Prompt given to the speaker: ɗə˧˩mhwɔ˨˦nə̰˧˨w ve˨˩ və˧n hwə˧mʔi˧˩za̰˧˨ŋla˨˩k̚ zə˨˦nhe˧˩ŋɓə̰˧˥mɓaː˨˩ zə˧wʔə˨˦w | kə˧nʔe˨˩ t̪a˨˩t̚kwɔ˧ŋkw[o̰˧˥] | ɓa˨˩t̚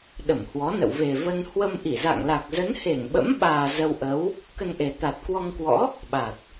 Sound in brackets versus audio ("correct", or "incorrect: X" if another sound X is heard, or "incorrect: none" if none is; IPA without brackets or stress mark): incorrect: ɔ̰˧˥